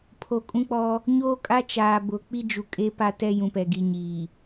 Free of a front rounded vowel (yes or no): yes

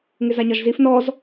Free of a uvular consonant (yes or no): yes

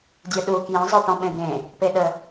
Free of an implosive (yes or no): no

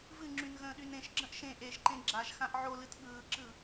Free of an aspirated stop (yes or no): yes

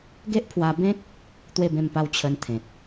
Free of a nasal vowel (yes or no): no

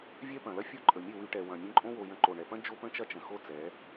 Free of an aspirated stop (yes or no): yes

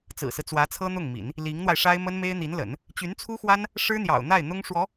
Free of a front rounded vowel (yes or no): no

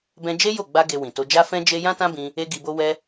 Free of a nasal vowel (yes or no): no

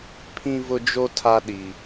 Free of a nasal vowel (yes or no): no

